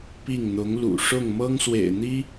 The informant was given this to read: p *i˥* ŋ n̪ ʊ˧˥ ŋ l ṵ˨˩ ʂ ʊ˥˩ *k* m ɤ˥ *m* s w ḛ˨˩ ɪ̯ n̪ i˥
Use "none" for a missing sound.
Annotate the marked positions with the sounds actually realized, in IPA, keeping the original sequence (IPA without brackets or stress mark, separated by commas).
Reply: i˥˩, ŋ, ŋ